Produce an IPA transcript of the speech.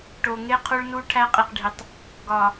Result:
ʈ o˨ ŋ e˦ qʰ o˦ ɭ n u˦ ʈʰ æ˦ qʼ i˨ q ɖʱ i˨ tˤ | ɡ ɒ˨

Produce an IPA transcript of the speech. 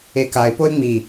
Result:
e k a ɪ̯ p o ɪ̯ ŋ͡m i

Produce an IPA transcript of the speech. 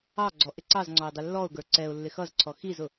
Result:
ɑ ɡ͡ǀ ɔ ʔ ɪ ǀ ɑ z ŋ͡ǀ ɔ ɪ̯ dˤ ɪ lː ɔ ʊ̯ ɡ ə˞ ǀ ɛ ʊ̯ lː ɪ x ʌ z ǀʰ ɔ x i z ʊ

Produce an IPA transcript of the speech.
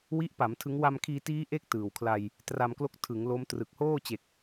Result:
w i˦˥ ʔ p a˩˦ m tʰ ɯ˦˥ ŋ w a˧ m kʰ iː˧ t iː˦˥ ʔ e˦˥ k̚ t ɯː˨˩ w kʰ l a˧ j | t r a˧ m k l o˦˥ k̚ tʰ ɯ˩˦ ŋ l o˦˥ m t r ɯ˨˩ k̚ h oː˥˩ t͡ɕ e˨˩ k̚

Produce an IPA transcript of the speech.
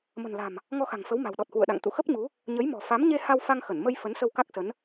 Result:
m ə̤˨˩ n l a̤˨˩ m | ŋ ɔ˧ x a̤˨˩ ŋ f ə˨˦ w m a̤˨˩ w ɗ ɔ˨˩ t̚ h w ṵ˧˨ ə̯ ɗ a̰˧˨ ŋ t̪ ṵ˧˨ x ə˦˥ p̚ ɲ u˨˦ | ɲ ə˨˦ j m ɔ̤˨˩ f a˨˦ m ɲ e˧ h a˧ w f a˧ ŋ x ə˧˩ n m ə˧ j f ə˨˦ n s ə˧ w k a˦˥ k̚ s ə˨˦ n

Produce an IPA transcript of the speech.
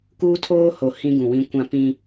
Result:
k uː˦ tʰ oː˦ h o˨ h ĩ˦ ɡ ũ˨ w ĩ˦ kʷ ã˦ p ĩ˦

